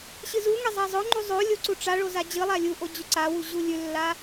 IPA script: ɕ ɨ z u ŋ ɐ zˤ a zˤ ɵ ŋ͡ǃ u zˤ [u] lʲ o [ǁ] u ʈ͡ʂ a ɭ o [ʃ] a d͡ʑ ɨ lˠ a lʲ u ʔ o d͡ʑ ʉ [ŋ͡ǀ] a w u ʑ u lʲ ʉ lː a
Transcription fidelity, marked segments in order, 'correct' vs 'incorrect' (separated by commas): incorrect, incorrect, incorrect, incorrect